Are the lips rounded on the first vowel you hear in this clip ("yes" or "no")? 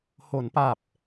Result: yes